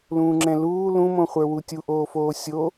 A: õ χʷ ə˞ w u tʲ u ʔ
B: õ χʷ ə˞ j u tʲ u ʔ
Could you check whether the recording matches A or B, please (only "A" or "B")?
A